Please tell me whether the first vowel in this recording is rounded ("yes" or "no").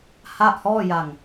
no